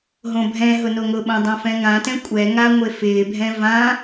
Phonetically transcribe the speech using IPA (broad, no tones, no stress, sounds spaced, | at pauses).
ɦ õ bʱ ɛ̃ ɦ ʊ n o ŋ ʊ ɓ õ dˤ õ f ɛ̃ ŋ ã t ɛ̃ kʷʼ ɛ ŋ a ŋʷ e f ɪː bʱ ɛ̃ v ã